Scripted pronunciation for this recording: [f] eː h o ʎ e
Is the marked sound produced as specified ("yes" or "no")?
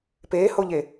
no